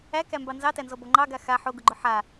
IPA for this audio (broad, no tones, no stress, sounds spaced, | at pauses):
æ k æ m b ɑ n z ɑ t æ n z ɔ b ɔ ŋ͡ǃ ɑ ɡ a x a ħ o ɡ ʊ ɡ͡ǃ ʊ ħ a